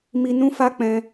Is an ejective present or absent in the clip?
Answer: absent